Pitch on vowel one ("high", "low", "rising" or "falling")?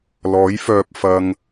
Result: rising